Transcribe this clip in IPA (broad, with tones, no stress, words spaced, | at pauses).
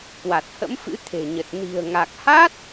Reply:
kwa˨˩t̚hə̰˧˥mfɨ̰˧˥ t̪ʰe̤˨˩ɲə˨˩t̚ ni̤˨˩ə̯ŋa˨˩k̚ha˦˥t̚